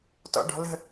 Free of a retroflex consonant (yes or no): no